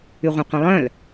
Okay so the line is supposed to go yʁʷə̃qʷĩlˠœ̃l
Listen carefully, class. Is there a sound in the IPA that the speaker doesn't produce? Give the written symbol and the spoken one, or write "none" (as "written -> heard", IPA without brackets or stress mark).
none